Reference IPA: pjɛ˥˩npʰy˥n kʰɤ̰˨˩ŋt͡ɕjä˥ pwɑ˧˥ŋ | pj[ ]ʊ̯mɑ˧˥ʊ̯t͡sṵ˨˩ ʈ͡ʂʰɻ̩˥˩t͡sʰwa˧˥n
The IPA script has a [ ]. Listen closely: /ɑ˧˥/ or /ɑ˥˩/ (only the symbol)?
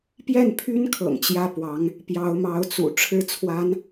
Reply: ɑ˧˥